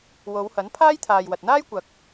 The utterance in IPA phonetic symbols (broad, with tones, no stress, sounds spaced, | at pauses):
w o˨˧ w h ɐ˨˥ n pʰ aː˥ j t̪ʰ aː˨ j w ɐ˨ t̚ n̪ aː˥ j kʷ ɐ˨ k̚